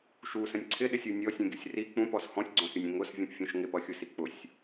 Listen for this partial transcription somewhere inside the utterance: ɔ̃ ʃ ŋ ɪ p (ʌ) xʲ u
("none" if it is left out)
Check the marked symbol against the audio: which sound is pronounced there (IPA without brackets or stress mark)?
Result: ʌ